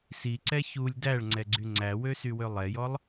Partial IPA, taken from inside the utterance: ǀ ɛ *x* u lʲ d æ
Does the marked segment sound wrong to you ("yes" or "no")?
yes